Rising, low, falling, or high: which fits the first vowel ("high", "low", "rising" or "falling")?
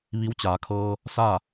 rising